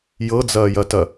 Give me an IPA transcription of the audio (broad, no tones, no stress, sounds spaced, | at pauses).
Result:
j ɤ d͡z ɐː j ɐ t ɐ